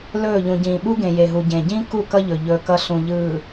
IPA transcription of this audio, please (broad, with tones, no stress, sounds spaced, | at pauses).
l ɵː˦˨ ʎ ũ˨ ɟ ĩː˨ ɓ u˦ ɡ ẽ˨ j e˨ ɦ u˨ ɟ ẽ˨ ɟ ĩ˦ k u˦˨ k ʌ˦ ʎ ɵ˨ ʎ ɵː˦ k ʌ˦ ɬ ũ˨ ʎ ɯː˨